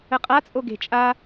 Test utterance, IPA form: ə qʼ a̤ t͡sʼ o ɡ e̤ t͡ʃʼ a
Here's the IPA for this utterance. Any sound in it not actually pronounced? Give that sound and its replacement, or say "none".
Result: a̤ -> a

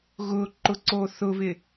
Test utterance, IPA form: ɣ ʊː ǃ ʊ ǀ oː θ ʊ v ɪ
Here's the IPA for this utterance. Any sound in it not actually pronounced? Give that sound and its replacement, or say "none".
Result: none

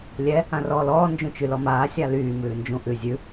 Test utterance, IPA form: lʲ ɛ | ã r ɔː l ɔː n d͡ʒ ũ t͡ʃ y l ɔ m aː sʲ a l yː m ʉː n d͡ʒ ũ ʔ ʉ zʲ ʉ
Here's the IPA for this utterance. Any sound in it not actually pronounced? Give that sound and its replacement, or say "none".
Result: none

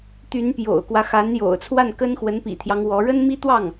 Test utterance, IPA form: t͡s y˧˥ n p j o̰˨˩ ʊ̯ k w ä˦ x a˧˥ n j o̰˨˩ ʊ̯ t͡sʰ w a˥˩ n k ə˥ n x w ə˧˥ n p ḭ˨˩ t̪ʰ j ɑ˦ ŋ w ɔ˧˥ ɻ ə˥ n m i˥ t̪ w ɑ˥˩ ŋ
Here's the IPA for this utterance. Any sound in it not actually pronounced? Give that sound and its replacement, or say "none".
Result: t͡s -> t̪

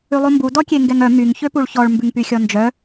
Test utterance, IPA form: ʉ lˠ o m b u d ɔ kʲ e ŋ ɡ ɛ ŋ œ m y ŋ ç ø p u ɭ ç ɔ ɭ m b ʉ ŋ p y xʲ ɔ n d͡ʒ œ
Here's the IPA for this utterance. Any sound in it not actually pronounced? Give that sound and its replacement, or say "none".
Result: none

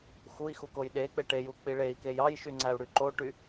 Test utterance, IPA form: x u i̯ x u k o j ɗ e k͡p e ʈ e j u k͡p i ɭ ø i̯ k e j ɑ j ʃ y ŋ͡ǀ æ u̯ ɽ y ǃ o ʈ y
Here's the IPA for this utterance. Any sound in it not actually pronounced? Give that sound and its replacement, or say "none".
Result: ø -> e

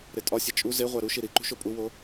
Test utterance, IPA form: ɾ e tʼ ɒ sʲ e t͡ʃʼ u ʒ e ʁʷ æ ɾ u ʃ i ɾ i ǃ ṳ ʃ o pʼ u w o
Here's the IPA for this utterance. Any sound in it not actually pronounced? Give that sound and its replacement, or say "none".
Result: ʒ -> z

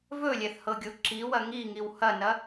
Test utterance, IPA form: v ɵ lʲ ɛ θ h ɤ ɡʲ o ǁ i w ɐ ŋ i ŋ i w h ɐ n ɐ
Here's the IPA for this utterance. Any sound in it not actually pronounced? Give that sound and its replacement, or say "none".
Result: none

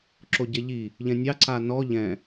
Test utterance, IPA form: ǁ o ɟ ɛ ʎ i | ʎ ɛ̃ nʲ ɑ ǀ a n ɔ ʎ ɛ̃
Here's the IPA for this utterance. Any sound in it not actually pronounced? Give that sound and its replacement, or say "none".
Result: none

